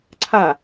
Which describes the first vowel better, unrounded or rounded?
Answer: unrounded